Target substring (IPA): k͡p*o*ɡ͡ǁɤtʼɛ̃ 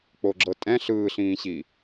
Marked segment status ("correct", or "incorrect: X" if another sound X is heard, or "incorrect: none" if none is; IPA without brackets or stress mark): correct